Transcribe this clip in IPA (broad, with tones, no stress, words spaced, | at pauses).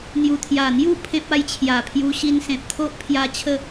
n̪ju˨˩t̪ʰja˨˩n̪ju˥˧ pʰẽ˦p̚a˧jt͡ɕʰja˨˩pʰju˧ ɕi˧nsẽ˨p̚t̪ʰo˦ʔpʰja˧ t͡ɕʰə˥˧